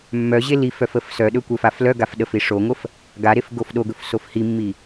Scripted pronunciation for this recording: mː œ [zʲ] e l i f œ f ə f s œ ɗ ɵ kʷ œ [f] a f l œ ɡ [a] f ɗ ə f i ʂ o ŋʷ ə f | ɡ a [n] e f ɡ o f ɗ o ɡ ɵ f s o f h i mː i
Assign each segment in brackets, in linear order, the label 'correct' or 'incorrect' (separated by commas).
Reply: incorrect, correct, correct, incorrect